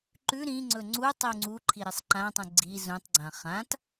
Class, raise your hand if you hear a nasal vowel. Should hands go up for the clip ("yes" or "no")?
yes